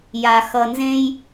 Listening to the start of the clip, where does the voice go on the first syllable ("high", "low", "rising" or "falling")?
low